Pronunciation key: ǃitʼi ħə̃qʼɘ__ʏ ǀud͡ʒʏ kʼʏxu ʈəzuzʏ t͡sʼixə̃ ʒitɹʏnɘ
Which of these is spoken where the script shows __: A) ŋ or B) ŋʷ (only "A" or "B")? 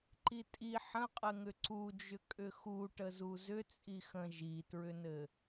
A